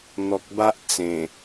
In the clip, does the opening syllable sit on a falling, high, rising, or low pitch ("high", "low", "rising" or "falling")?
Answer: low